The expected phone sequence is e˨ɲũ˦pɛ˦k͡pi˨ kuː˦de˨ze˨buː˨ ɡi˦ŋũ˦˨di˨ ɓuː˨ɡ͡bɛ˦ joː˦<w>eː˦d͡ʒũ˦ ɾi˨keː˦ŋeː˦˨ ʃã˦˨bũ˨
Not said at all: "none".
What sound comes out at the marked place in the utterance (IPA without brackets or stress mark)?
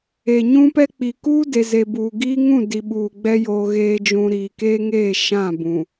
ɣ